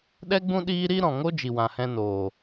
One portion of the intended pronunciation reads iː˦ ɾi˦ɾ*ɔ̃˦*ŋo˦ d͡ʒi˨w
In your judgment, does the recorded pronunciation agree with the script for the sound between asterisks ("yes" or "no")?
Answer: no